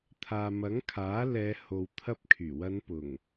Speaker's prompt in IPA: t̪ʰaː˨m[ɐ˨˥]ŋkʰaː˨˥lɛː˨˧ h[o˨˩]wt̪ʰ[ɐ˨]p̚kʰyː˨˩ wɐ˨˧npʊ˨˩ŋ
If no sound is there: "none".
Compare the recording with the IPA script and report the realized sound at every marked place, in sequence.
ɐ˨˥, o˨, ɐ˧

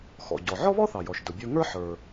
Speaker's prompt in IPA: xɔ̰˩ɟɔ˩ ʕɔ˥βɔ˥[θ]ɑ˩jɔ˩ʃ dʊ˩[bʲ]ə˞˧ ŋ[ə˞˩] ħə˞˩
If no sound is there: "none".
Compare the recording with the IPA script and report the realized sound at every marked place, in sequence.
θ, bʲ, ə˞˥

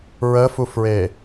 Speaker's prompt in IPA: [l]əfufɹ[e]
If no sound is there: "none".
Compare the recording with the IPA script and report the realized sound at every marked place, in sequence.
ɹ, e

